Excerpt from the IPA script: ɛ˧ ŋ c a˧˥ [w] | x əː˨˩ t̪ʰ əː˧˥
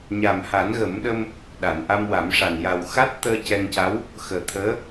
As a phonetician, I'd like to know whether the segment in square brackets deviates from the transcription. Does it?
no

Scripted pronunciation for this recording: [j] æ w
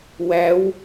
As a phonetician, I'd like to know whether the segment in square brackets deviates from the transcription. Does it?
yes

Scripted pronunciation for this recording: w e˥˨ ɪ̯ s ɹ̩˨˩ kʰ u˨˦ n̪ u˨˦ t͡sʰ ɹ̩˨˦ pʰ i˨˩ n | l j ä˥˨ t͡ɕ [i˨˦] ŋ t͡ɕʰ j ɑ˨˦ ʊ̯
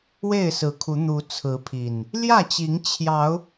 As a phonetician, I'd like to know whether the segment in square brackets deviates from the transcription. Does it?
no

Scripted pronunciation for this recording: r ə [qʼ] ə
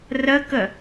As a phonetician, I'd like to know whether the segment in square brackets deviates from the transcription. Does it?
yes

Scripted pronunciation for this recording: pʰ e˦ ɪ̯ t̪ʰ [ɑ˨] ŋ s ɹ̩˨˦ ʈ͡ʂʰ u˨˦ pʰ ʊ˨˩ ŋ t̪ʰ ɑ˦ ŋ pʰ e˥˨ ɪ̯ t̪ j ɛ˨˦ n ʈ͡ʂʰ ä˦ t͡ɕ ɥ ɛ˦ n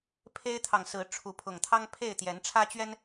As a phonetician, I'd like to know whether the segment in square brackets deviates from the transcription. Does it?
no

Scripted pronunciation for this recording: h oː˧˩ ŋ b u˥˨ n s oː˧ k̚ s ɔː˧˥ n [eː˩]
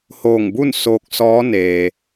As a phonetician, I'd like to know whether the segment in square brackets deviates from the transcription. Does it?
no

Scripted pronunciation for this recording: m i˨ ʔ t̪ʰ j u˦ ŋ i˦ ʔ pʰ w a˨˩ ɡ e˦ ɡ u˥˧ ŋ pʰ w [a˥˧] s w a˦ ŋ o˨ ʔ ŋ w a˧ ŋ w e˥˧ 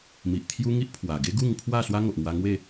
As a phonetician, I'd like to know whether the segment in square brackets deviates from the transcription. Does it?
no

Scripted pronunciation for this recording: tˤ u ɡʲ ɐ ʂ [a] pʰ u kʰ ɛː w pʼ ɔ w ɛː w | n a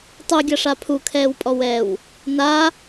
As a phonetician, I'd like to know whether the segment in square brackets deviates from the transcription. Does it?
no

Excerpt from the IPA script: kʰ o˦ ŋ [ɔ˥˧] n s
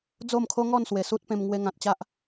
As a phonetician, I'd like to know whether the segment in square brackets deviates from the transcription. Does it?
no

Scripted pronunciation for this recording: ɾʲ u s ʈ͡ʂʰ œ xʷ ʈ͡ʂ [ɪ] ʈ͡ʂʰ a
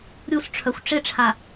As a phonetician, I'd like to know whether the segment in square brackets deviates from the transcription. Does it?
no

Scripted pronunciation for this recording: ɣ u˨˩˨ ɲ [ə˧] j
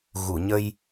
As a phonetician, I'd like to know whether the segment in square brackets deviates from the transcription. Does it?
no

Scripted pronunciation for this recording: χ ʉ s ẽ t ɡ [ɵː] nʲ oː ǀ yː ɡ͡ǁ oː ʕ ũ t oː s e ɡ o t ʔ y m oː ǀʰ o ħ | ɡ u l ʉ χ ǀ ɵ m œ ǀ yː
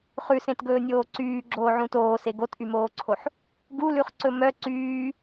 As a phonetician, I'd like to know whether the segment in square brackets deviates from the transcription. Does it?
no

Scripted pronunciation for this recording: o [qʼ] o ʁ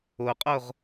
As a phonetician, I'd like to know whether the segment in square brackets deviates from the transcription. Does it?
no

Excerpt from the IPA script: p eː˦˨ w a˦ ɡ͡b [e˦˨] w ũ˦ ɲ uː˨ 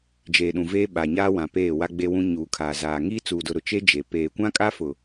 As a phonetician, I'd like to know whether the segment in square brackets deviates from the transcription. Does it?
yes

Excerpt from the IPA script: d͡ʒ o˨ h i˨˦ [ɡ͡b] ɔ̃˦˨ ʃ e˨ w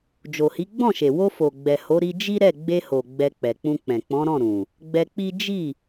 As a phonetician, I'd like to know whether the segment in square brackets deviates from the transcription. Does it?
no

